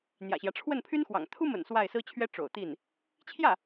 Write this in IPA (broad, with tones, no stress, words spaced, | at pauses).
n̪jä̰˨˩ɕjä˦ ʈ͡ʂʰwə˥˩npʰy˥nxwɑ̰˨˩ŋ t̪ʰu˥mə̰˨˩n swa˥˩ɪ̯sɹ̩˥t͡ɕʰɥɛ˥ ʈ͡ʂo̰˨˩ʊ̯t̪i˥˩n | t͡ɕʰjä˥˩